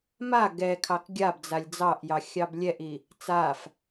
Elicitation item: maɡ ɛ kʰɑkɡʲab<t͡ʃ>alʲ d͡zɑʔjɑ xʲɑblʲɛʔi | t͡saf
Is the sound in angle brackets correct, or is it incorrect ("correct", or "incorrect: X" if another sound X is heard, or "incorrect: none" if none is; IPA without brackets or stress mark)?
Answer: incorrect: d͡z